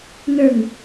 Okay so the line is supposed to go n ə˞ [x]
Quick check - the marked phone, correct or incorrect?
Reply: incorrect